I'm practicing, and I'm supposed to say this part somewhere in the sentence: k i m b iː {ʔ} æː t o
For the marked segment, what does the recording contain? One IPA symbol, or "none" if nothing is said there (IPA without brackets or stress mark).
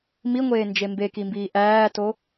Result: ʔ